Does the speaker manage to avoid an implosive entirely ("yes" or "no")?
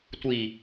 yes